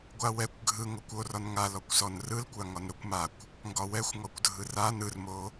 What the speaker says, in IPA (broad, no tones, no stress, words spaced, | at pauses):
ɡʷawɛkʷ ɡʱɯ ŋokʷorɒn ŋalɔkʷsɔn rɯlkʷaŋɒn ɾokʷmakʷ | ŋɡɒwɛxʷŋɔkʷ dʱɯran ɯrmo